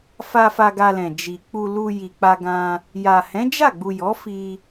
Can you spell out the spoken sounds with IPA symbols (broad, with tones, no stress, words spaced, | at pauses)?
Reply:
fa˧ fa˧ɡa˧lɛ̃˨ d͡ʒi˨k͡pu˧ lu˧ji˨k͡pa˧ɡã˧ | ja˨ hɛ̃˨˦ d͡ʒa˦˨ɡ͡bu˨ jɔ˨˦fi˧